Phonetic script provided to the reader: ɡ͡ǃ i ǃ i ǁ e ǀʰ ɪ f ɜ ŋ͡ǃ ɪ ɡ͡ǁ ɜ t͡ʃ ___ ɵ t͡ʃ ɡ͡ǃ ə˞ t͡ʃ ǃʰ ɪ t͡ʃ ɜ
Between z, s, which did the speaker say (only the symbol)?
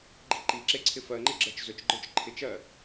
z